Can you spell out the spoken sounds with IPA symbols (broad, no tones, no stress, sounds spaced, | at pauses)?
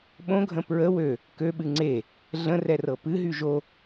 ɓ õ ɡʱ ə̃ p ɹ ə w ø | k ø ɓ ɨ ŋ͡ǀ e | ɮ ə̃ r ɛ r ɤ p ɨ ɦ y ʒ o